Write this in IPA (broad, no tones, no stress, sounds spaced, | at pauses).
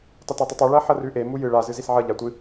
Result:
tˤ ɐ t a tˤ u tˤ i ɭ ɐ ħ ɐ r ʉ ʔ e m u j ɨ ɭ a z ɨ z i s ʕ ɐ ʎ a tʷ ɨ